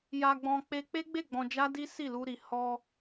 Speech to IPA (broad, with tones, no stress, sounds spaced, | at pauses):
j a˧ ɡ͡b ɔ̃˧ k͡p e˧ k͡p e˦ ɡ͡b e˦˨ ɡ͡b ɔ̃˧ d͡ʒ a˦ d i˦ s i˦˨ l u˧ ɾ i˨ h ɔ˧